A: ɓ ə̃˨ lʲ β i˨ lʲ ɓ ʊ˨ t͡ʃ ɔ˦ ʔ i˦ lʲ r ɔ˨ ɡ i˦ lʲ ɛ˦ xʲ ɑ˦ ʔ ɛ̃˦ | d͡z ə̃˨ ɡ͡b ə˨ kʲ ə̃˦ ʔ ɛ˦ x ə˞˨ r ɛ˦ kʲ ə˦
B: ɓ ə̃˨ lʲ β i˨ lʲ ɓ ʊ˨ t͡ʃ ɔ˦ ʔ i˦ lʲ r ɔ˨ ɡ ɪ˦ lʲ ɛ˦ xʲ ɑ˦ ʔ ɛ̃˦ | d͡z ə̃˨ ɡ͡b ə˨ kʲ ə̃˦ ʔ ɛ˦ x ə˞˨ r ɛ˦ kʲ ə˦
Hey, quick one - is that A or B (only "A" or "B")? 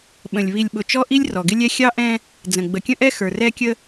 B